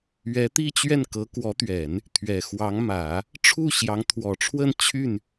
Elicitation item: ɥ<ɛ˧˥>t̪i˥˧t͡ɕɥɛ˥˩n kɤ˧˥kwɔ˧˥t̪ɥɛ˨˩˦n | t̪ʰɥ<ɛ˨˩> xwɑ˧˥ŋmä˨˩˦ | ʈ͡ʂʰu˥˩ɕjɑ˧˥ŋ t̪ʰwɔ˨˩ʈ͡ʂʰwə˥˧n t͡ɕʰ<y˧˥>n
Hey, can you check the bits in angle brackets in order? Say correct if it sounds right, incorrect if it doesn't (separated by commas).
correct, correct, incorrect